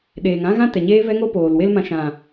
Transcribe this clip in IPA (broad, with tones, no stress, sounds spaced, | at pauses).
ɗ eː˨ ŋ ã˦ ɣ ã˦ t ɛ˨ ɲ eː˧ v ɛ˧ ŋ o˧ p oː˨ l w e˦ l m ã˧ ʃ ã˨